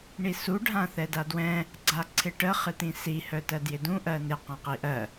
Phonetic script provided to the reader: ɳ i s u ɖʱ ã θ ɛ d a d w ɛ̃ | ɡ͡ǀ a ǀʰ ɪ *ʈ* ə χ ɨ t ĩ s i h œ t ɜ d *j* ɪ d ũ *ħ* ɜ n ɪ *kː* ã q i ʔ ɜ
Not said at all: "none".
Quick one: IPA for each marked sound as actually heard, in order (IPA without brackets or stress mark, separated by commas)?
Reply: ʈ, j, ʔ, q